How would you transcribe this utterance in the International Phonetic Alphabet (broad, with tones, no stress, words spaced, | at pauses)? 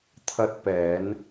t̪ʰɐ˧t̚pɛː˨˧n